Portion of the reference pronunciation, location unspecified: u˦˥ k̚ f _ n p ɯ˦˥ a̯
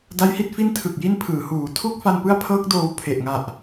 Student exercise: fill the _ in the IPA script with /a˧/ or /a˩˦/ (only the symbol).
a˧